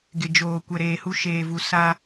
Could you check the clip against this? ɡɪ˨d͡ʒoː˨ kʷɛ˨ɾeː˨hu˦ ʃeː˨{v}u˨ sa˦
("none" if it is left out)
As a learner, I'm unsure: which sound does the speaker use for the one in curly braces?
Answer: v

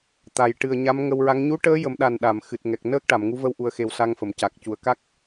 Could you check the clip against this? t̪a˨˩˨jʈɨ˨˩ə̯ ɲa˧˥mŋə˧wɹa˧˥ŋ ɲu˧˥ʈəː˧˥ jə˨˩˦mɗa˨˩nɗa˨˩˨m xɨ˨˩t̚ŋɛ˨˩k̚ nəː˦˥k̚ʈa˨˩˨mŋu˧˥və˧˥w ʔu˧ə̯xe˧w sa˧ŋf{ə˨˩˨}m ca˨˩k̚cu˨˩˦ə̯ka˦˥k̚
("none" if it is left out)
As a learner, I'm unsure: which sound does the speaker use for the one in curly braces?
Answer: ə˨˩˨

